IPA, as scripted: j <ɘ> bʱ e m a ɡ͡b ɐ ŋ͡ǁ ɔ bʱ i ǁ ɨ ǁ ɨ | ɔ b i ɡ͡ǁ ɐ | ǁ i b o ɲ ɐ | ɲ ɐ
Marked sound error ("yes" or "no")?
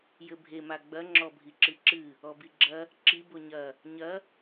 no